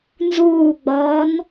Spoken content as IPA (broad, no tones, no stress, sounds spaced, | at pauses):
n z uː ɡ͡b ɒː n